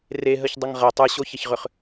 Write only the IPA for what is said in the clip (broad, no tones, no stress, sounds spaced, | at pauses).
r e ɦ ə ç dˤ ə ŋ ʁ ɐ tˤ ɯ ɕ o ç ɐ ç ʁ ʏ χ